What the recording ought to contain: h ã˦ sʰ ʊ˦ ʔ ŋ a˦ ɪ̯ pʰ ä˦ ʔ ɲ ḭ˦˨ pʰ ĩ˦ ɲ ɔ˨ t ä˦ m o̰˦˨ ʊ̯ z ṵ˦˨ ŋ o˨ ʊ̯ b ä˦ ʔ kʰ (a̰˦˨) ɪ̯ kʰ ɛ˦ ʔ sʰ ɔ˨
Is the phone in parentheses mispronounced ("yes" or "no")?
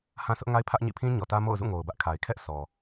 yes